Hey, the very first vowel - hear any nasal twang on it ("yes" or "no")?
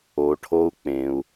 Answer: no